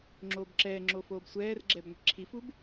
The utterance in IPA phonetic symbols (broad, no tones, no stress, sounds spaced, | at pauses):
ŋ͡ǁ oː b ǁ ɛː ŋ͡ǁ o f oː b sʷ ɛː r ɡ͡ǁ ɛ b ŋʷ i̤ ǁʰ i f u b